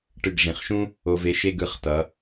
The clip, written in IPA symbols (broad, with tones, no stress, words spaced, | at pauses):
ʈɯ˧˩ɡʐĩ˩˧χʃũ˥ | o˧ve˧ʃe˥˧ɡ ɯ˧˩χtʌ˩˧